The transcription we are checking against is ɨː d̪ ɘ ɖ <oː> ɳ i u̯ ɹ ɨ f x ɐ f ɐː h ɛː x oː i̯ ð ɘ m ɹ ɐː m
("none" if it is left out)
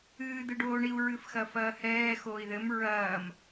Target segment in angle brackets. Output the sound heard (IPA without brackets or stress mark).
oː